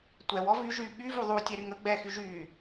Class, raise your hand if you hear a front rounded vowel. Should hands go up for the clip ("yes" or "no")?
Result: yes